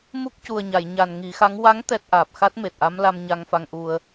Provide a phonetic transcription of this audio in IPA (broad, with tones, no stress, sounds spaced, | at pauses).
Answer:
m u˦˥ k̚ c u˨˩ ə̯ ɲ a˨˩˨ j ɲ a˨˩ n ŋ i˨˩˦ x a˧˥ ŋ w a˧˥ ŋ t̪ ɛ˦˥ t̚ ʔ aː˨˩ p̚ x a˦˥ t̚ m e˨˩ t̚ ʔ a˧˥ m l a˧ m ɲ a˧ ŋ f a˧ ŋ ʔ u˧ ə̯